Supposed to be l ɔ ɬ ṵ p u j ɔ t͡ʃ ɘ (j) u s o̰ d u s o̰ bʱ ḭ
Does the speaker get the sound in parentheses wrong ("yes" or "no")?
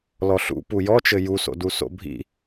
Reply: no